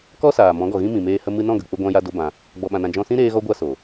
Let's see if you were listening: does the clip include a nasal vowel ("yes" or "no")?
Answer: yes